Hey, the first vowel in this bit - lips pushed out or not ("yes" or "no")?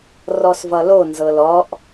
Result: yes